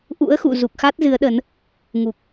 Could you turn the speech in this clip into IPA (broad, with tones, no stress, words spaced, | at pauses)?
ʔṵ˧˥ə̯xṵ˧˨ zu˨˩k̚xa˦˥t̚zɨ˨˦ə̯ɗə˨˦n | ŋu˨˩k̚